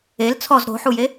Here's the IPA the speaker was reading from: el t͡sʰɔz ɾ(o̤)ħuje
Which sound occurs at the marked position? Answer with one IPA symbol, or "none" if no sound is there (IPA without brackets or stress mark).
o̤